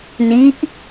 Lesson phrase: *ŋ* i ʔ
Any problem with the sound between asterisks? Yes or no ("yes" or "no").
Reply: yes